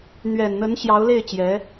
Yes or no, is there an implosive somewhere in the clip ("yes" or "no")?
no